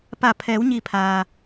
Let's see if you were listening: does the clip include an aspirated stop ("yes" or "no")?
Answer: yes